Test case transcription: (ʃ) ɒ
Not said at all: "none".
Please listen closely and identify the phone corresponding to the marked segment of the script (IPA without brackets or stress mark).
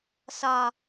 s